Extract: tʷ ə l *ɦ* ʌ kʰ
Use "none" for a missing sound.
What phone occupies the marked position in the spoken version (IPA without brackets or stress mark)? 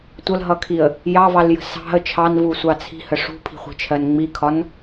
ɦ